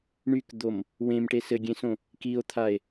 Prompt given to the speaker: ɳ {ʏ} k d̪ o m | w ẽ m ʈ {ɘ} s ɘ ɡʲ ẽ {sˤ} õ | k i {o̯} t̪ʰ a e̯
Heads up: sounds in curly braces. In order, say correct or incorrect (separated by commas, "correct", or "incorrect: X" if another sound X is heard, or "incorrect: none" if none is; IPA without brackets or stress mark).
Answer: incorrect: y, incorrect: e, incorrect: s, correct